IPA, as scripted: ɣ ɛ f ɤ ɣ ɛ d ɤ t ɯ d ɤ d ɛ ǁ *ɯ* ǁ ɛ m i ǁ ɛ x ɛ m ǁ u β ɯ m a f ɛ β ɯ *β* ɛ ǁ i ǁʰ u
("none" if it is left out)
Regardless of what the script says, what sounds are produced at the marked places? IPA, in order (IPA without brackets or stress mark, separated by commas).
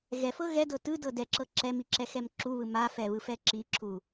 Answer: ɤ, f